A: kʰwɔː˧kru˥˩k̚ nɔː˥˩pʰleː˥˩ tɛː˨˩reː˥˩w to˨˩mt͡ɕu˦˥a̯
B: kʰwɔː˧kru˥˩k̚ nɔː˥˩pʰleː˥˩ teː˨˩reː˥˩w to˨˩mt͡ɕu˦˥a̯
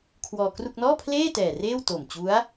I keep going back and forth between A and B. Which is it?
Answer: A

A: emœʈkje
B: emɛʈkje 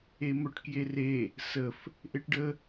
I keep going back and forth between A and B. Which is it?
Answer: A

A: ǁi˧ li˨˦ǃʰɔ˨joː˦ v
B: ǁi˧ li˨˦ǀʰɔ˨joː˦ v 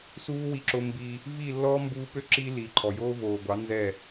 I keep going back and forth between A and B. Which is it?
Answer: A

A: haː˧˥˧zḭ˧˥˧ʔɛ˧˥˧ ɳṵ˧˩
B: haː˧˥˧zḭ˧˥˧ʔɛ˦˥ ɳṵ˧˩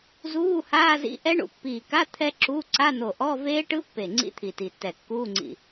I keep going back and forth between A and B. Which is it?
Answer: B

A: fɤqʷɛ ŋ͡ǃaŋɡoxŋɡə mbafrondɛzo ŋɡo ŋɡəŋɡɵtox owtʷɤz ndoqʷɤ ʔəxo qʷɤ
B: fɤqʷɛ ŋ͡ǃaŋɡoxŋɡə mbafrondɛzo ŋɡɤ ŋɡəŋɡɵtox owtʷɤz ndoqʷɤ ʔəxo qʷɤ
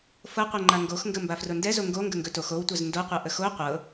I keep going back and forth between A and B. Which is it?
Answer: A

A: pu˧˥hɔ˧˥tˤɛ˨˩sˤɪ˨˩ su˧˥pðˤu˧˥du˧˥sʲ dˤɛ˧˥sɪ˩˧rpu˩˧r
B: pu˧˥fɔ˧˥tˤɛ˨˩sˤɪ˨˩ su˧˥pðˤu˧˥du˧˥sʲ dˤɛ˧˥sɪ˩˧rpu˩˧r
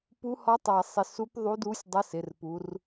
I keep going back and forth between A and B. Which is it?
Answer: A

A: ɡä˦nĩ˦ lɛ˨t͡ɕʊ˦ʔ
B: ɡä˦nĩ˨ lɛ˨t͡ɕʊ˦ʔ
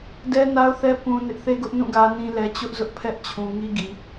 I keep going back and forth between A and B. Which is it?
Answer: A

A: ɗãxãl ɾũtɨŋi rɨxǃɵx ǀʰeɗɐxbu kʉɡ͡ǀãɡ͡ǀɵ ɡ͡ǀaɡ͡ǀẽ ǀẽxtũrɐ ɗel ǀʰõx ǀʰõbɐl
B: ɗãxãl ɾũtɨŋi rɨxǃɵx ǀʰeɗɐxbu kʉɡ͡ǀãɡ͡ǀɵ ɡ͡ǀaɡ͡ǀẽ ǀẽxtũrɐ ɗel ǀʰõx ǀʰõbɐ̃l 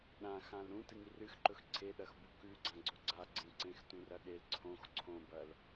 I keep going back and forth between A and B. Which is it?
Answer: A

